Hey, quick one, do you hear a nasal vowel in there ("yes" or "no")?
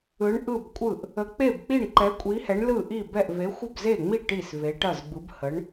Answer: no